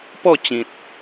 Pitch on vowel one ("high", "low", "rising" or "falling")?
falling